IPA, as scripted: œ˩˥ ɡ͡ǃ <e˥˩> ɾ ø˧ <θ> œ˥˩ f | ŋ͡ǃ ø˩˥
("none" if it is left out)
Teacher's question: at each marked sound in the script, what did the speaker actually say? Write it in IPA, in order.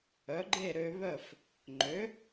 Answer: e˥˩, β

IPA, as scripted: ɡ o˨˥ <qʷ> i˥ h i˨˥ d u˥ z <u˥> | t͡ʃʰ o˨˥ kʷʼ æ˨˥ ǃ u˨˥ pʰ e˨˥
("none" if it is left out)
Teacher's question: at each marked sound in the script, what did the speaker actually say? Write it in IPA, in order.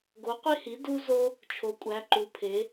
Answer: qʷ, o˥

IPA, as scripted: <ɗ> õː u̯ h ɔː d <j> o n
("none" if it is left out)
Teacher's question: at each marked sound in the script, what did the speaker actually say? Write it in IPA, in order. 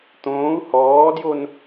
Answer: t̪, j

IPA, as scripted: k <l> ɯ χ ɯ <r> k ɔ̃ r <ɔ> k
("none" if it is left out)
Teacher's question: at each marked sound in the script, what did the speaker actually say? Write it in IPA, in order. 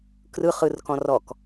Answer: r, r, ɔ

